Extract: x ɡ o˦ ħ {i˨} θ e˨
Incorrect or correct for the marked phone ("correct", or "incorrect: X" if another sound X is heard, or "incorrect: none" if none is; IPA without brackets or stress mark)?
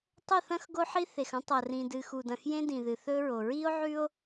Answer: incorrect: i˦